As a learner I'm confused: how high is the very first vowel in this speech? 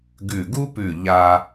high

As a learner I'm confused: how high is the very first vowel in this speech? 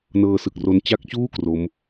mid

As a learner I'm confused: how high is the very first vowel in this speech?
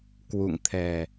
high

